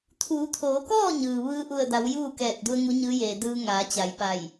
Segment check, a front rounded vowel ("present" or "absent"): absent